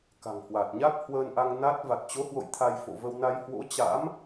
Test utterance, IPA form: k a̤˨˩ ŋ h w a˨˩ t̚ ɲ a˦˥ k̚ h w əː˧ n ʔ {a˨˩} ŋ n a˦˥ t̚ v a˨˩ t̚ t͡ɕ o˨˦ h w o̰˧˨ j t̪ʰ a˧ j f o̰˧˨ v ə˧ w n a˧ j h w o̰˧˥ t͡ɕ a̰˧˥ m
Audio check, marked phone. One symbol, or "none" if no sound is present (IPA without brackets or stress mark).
a˧